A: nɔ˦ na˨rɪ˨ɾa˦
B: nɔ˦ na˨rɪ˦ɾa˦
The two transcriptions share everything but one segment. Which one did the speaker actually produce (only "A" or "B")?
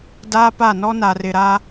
A